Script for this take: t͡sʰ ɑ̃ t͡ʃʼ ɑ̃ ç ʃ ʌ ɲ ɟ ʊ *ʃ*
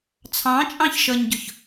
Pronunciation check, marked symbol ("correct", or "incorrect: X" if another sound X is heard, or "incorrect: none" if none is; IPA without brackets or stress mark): incorrect: ç